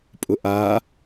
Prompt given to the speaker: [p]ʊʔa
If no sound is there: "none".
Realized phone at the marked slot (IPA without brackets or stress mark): pʼ